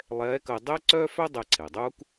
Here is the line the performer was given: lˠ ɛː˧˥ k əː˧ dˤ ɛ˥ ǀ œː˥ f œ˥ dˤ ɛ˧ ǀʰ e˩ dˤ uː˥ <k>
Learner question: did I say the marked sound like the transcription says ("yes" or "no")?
yes